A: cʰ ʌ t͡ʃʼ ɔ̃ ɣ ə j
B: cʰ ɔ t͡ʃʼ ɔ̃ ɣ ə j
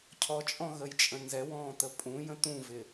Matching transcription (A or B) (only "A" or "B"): B